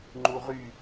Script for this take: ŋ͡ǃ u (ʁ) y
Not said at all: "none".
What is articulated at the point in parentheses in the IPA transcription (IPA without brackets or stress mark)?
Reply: ʁ